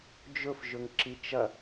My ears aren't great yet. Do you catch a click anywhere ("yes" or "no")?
yes